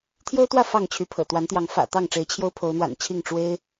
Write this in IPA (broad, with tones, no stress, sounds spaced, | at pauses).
t̪ʰ j o˦ ʊ̯ t̪ w ä˥˨ f ɑ˥˨ ŋ t͡ɕʰ y˨˦ pʰ ɤ̰˨˩ t̪ w a˨˦ n t̪ j ɑ˨˦ ŋ f ä̰˨˩ t̪ ɑ˥˨ ŋ ʈ͡ʂ e˨˦ ɪ̯ t͡ɕʰ j o˦ ʊ̯ pʰ o˨˦ ʊ̯ n̪ w a̰˨˩ n t͡ɕʰ i˥˨ ŋ ʈ͡ʂ w e˦ ɪ̯